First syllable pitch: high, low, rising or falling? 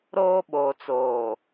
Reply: high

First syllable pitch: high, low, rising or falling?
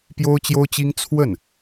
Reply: high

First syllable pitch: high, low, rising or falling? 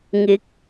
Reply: rising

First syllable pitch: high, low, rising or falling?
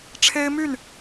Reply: high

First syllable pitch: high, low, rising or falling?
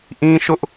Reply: high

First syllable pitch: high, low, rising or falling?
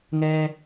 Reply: high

